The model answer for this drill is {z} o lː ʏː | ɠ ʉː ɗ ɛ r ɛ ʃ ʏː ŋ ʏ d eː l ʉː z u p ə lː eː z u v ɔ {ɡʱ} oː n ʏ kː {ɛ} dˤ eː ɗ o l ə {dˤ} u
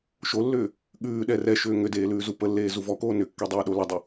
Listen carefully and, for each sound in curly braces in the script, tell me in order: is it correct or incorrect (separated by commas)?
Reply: incorrect, incorrect, correct, correct